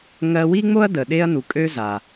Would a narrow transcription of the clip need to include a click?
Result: no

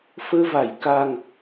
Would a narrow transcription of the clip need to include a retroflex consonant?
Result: no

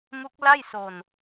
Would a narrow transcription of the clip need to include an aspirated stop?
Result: no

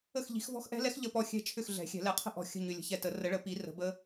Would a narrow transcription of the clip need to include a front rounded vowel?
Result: yes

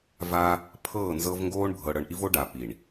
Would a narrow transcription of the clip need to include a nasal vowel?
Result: no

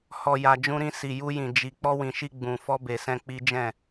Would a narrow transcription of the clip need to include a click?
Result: no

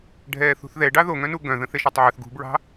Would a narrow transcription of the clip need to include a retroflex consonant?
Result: yes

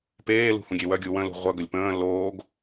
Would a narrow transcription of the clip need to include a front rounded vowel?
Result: yes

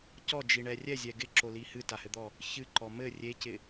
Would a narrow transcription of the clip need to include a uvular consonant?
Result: no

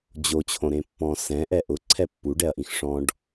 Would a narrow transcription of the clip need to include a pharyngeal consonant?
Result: no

